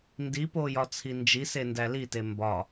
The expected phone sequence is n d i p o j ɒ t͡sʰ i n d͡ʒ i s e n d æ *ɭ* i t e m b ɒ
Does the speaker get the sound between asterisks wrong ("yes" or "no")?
yes